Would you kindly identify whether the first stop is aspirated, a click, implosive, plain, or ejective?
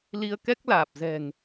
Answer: plain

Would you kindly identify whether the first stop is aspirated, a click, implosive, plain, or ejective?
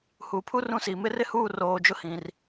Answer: aspirated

